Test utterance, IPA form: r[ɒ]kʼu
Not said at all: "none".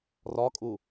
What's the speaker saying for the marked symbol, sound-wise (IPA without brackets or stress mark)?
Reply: ɒ